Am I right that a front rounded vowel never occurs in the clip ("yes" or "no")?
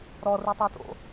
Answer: no